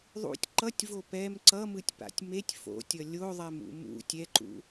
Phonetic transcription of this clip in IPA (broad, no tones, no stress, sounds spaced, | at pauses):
ðˤ ṵ tʲ ǃ ʌ tʲ v o p ɛ m ǀ ʌ m ɯ tʲ p a̰ tʲ m e tʲ f o̰ tʲ ʌ lʲ o ðˤ ɛ m ṵ m ṵ tʲ ɛ ǃ ṵ